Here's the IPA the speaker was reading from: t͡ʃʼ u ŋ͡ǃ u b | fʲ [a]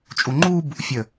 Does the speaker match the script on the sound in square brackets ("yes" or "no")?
no